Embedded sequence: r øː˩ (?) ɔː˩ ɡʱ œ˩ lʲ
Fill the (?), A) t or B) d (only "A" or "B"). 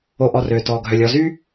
A